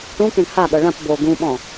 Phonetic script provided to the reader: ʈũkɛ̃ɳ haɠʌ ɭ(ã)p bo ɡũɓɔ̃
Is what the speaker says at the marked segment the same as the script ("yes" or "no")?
yes